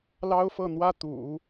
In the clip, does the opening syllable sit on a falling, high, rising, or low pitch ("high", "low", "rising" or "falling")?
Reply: high